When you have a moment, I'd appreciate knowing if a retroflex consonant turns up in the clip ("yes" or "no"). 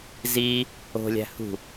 no